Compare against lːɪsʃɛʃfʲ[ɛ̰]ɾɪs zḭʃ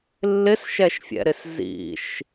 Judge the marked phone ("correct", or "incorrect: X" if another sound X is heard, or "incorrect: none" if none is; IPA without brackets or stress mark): correct